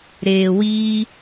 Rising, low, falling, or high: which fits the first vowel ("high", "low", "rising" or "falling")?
low